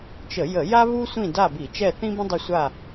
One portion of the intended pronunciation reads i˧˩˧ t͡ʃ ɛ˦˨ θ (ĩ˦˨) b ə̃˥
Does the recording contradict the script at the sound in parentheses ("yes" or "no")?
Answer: yes